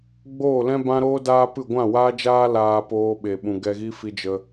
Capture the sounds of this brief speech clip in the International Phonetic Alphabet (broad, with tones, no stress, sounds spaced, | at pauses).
ɡ͡b oː˦˨ l ɛ̃˦ b ã˦ ɾ oː˦ d aː˦ p ɨ˦˨ ɡʷ ã˦˨ w aː˦ d͡ʒ aː˦ l aː˧ p oː˧ ɓ e˨ ɓ ũ˨ ɡ ɛ˧ ɣ i˦ f i˧ d͡ʒ ə˧